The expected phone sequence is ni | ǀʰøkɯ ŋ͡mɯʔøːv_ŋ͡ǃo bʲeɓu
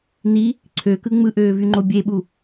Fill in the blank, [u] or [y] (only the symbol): y